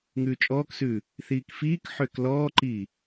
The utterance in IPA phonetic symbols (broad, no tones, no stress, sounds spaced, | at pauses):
ŋ ʉː t͡ʃʼ ɔː k s ʉː | θ iː k f iː k ħ ʏː k l ɔː ǃ iː